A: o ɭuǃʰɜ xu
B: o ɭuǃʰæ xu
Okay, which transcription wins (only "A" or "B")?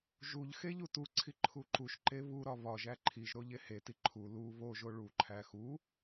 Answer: B